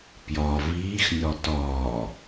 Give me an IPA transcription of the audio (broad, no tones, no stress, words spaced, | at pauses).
pjɒ viːxnʲɒ tɒː